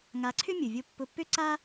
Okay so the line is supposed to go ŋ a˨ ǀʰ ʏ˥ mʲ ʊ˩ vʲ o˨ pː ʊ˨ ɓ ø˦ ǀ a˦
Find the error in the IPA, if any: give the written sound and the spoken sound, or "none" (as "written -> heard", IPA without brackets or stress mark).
ɓ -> pː